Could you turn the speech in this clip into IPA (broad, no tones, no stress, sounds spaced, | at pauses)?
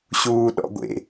ɕ uː ɗ ɔ̰ ɡʷ ḛ